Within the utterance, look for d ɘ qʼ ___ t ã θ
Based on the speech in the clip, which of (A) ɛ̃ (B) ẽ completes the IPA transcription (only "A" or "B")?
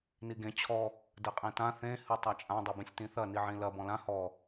B